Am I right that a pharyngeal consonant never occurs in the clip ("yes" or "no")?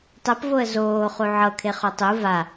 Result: no